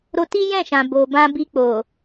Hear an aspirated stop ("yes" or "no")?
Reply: no